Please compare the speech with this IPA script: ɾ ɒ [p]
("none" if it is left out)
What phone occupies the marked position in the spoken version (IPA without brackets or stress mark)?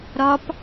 p